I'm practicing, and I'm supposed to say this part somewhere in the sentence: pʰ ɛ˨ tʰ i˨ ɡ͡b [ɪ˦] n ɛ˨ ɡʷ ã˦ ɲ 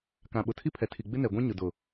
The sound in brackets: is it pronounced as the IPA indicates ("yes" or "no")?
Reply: yes